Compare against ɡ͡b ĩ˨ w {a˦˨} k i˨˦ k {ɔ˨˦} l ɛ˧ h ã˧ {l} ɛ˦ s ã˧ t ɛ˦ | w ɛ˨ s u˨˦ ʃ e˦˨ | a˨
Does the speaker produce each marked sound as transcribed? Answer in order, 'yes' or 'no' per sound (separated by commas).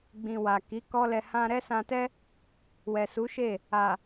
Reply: no, no, no